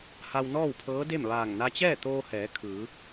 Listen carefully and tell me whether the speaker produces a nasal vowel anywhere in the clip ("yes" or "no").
no